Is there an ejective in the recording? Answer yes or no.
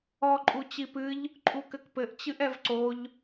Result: yes